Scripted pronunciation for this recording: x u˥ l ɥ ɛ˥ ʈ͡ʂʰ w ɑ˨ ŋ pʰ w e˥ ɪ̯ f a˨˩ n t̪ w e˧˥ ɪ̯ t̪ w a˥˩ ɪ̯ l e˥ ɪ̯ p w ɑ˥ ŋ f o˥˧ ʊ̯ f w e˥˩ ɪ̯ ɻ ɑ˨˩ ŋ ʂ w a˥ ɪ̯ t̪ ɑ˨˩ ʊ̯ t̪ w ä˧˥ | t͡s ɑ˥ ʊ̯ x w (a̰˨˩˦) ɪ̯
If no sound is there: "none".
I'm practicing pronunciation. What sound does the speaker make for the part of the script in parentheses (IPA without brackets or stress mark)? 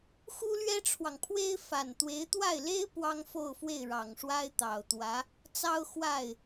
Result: a˥˩